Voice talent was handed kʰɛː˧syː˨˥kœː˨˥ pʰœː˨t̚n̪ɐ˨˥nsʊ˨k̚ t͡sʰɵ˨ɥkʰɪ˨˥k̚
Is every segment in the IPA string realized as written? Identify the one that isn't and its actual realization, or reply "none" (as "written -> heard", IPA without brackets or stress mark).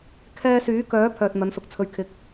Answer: none